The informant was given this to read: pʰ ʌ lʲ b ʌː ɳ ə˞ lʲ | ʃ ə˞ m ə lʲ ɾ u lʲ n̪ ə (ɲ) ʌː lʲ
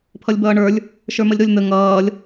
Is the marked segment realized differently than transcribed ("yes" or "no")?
yes